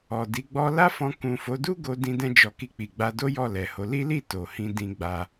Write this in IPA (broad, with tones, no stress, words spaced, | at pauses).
ɔ˨di˨˦ ɡ͡bɔ˧ la˦fɔ̃˧ kũ˨fo˨˦ du˦ ɡo˧ dĩ˧dɛ̃˧d͡ʒɔ˨ ki˧k͡pi˨ɡ͡ba˧do˦ jɔ˦˨lɛ˨ho˨˦ li˦li˦˨ to˨hĩ˧ dĩ˧ɡ͡ba˧